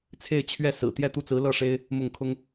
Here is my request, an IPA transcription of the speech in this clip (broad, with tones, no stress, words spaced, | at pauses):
t͡sʰe˥˧ɪ̯ t͡ɕʰɥɛ˥˩ sɹ̩˨˩ t̪jɛ˥˧t̪u˥˩t͡sɹ̩˧˥ lɤ˥˩ʂe˥ɪ̯ | mʊ˥˩ŋ kʰʊ˥ŋ